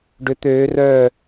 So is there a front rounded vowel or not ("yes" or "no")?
yes